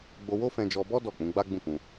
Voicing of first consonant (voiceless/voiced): voiced